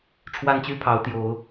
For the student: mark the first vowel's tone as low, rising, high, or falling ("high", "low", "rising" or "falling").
high